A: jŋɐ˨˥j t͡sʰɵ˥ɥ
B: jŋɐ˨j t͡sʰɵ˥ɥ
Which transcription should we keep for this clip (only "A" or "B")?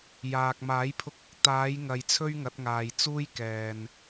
B